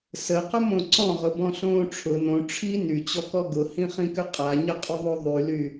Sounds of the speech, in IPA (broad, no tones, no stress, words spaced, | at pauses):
səqʊmõ ǀɔ̃ʁʊbɔ̃ɬõː ʈ͡ʂʰʊ nõ ʈ͡ʂʰi nyt͡ɕɔkɔ ɡʊhĩχĩkʏ qʼaɲəqʼʏðˤo ðˤyly